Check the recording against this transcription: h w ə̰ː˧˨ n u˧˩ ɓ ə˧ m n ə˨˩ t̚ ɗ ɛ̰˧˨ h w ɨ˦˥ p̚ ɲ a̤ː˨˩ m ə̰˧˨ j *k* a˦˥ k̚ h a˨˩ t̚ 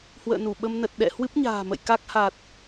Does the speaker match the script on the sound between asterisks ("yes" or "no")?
yes